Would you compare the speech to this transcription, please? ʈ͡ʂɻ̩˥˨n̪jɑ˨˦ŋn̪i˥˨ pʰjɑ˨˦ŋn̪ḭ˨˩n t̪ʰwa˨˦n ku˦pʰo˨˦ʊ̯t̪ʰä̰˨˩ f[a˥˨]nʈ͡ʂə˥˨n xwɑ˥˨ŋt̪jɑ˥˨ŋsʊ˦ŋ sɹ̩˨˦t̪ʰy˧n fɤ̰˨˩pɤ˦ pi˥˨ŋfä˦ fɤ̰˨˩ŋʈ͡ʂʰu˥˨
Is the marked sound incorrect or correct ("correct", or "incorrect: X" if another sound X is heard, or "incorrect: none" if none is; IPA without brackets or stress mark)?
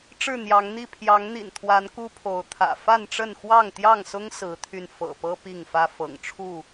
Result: correct